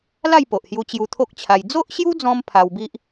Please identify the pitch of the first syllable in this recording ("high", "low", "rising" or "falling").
falling